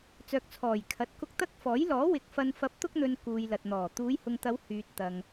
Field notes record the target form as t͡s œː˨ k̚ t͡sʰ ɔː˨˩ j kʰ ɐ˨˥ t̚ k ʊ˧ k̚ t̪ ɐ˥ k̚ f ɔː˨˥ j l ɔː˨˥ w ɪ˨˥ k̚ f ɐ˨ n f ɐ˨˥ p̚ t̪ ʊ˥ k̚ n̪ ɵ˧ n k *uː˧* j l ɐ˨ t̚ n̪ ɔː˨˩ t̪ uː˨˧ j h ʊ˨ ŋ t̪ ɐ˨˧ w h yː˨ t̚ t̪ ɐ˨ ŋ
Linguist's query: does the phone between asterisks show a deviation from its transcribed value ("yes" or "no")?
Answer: yes